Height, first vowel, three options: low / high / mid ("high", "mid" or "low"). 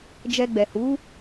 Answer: mid